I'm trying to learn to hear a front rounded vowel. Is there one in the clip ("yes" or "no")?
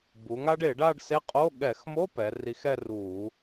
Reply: no